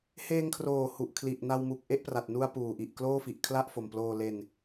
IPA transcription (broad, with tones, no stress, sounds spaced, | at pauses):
h eː˧ ŋ kʰ r oː˨˩ h u˨˩ ʔ kʰ l i˨˩ ʔ n a˧ w m u˨˩ k̚ ʔ e˥˩ ʔ p r a˨˩ t̚ n u˧ a̯ p uː˨˩ ʔ i˨˩ ʔ k l oː˥˩ f i˨˩ ʔ kʰ l a˥˩ ʔ f o˨˩ m p l oː˧ l e˧ n